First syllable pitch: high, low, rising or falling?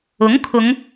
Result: rising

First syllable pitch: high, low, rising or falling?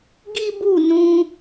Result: high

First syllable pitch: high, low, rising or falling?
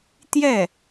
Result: falling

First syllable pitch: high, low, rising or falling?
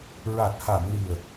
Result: low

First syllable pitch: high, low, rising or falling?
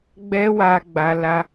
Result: high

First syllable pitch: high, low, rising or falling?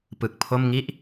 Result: low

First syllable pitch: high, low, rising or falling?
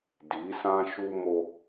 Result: rising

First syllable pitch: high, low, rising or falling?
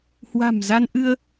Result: low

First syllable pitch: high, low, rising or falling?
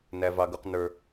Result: high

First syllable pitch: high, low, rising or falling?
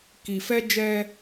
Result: low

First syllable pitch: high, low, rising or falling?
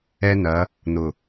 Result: high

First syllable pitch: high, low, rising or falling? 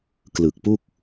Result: low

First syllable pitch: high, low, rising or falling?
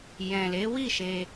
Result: low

